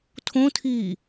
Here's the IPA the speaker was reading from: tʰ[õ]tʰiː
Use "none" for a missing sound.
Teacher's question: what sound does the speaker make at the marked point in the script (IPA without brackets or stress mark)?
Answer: õ